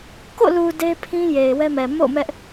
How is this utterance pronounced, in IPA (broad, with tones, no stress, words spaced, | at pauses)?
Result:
ko̰˦˨lu˨ de˦pʰĩ˦ je˨ɪ̯wɛ˦mɛ˨ mo̰˦˨mɛ˦ʔ